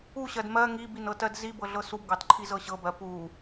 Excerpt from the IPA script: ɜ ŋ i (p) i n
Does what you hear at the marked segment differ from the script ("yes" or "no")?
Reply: yes